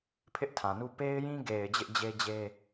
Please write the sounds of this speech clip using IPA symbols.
pʰ ɪ˦ ʔ tʰ ã˨ n u˦ p e˦ ɪ̯ j ĩ˦ ɡ e˨ ɪ̯ d͡ʑ ɪ˦ ʔ d͡ʑ e˦ d͡ʑ e˦

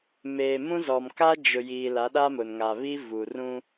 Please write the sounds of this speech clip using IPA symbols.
m eː˨ m ũ˦ z ɔ˨ m k a˦ d͡ʒ ʊ˨ j iː˨ l a˨˦ ɗ a˦ m ʊ˨ n ŋ a˨ β i˦ v u˨ r ũ˦

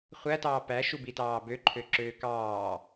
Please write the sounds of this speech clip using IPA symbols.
χʷ æ t ɑː p æ ʃ u b i t ɑː b ø ǃʰ ø ǁ øː k ɑː

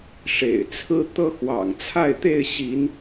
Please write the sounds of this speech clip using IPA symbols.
ʂ ḛ˨˩ ɪ̯ t͡sʰ ɹ̩˦ t̪ ɤ˦ x w ɑ̰˨˩ ŋ t͡sʰ a˥˨ ɪ̯ t̪ e˥˨ ɪ̯ ɕ i˨˦ n

